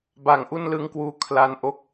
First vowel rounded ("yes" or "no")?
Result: no